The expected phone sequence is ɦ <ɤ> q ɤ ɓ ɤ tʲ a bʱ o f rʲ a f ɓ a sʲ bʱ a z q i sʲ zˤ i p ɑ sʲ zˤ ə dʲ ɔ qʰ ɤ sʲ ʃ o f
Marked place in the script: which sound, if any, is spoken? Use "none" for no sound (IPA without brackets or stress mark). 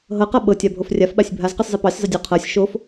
ɤ